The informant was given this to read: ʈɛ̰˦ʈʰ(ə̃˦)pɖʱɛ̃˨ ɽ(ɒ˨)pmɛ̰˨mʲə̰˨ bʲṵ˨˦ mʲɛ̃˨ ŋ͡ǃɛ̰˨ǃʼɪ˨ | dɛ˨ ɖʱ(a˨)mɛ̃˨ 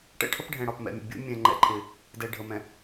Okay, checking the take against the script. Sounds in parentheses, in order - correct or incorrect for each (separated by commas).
incorrect, correct, incorrect